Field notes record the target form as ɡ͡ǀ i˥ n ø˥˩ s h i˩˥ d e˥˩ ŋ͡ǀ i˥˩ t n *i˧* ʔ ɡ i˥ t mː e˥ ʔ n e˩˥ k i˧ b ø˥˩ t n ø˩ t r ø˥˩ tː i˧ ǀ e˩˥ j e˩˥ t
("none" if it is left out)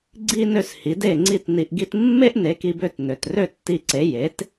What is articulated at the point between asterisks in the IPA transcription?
i˧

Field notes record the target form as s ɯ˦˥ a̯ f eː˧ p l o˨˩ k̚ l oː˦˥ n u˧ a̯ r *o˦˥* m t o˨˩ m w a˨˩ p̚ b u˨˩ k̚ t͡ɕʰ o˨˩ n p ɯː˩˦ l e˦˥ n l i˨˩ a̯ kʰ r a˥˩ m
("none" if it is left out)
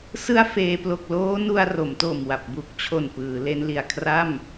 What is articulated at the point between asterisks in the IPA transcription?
o˩˦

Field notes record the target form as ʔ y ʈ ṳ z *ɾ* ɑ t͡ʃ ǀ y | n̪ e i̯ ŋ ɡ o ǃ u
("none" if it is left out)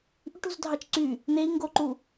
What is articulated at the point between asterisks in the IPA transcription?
dʱ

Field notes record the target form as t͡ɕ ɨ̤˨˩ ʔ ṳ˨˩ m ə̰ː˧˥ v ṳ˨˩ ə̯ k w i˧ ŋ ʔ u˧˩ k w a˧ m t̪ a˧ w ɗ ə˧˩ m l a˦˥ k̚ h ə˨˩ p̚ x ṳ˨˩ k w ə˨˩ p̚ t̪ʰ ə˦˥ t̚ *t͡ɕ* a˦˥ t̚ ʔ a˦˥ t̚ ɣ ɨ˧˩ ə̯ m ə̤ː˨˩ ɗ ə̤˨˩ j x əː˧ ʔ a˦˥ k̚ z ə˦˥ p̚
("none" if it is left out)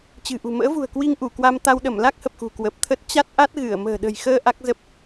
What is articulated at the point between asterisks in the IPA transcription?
t͡ɕ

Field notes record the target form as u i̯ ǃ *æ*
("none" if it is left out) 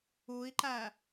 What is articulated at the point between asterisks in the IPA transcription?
æ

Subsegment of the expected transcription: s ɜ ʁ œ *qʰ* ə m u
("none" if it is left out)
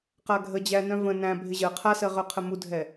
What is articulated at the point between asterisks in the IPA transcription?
qʰ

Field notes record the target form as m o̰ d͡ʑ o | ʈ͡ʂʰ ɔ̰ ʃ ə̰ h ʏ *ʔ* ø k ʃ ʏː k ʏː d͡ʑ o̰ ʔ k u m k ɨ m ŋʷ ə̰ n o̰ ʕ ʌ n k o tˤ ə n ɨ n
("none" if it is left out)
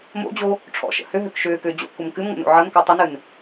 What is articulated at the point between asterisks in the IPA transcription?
ɦ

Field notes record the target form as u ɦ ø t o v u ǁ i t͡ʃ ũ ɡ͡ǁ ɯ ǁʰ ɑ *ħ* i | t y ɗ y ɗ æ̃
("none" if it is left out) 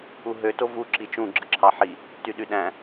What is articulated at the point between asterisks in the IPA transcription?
ħ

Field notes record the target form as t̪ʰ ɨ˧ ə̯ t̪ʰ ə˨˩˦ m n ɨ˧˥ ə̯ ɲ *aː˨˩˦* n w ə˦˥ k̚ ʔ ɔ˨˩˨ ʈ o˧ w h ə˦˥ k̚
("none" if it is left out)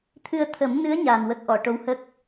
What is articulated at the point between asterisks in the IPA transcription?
aː˨˩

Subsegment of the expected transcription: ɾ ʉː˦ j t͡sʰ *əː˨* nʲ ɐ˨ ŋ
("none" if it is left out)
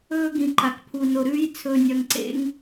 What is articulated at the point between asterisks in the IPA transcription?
ɵː˨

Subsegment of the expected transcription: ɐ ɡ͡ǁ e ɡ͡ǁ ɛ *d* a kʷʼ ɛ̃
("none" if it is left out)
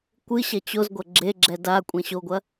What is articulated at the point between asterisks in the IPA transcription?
d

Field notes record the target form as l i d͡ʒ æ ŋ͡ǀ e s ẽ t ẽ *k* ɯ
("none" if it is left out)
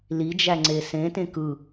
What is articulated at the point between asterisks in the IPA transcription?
k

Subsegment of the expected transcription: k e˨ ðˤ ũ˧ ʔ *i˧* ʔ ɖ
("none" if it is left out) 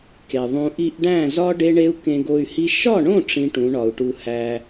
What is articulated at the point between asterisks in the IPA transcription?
i˧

